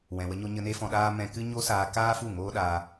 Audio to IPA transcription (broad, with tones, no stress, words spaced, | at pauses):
wɛ̃˨wə˧ɲo˧ ɲə˧ne˦fɔ̃˧ɗaː˦ mɛ̃˧ kɨ˦ ɲo˦saː˧kaː˦fu˦˨ ŋoː˦ɗa˧